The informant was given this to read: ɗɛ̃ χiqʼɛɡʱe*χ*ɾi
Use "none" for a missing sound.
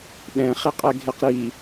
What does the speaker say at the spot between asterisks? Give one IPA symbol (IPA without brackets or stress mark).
q